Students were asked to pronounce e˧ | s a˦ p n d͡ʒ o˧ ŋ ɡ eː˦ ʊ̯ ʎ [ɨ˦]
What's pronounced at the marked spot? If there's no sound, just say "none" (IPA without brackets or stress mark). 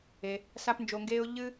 ɨ˦